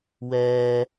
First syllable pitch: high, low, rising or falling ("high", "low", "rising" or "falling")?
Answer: high